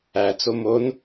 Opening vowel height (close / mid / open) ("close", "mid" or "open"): open